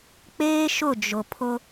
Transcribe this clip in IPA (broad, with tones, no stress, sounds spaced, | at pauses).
k͡p eː˦ ʃ ʊ˦˨ d͡ʒ ʊ˨ pʰ ʊ˦